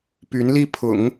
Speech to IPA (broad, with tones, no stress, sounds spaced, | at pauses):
p y˧˥ n l i˥˩ pʰ ʊ̰˨˩˦ ŋ